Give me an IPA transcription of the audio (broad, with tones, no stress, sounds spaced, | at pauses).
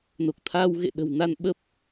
n o˨˩ k̚ t̪ʰ aː˧ w ɣ ḛ˧˨ ɗ ə̤˨˩ w n a˧ n ɓ ə˦˥ p̚